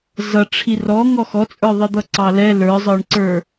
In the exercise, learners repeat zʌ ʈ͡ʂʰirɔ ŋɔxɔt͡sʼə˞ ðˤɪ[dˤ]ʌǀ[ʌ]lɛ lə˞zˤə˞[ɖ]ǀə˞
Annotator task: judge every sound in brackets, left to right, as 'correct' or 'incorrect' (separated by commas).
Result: incorrect, incorrect, incorrect